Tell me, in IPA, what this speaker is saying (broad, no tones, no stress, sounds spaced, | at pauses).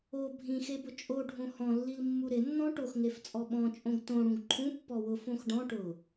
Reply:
o bʱ ĩ x e b ʊ t͡ʃʼ o ɖʱ õ h ɔ̃ lː i l mː u ɾ ɪ nː ɔ̃ ʈ o x ŋ e f t͡sʼ ɔ ɓ ɔ̃ t͡ʃʼ õ ɡ t õ ɽ ũ ɡ ǃʰ ũ pː ɔ w ʊ f õ x ɖ ɔ̃ ʈ ʊ